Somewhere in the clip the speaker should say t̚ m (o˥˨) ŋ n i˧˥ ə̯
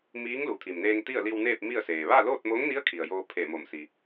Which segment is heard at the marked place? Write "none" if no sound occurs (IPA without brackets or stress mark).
o˧˥